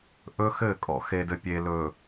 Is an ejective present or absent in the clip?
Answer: present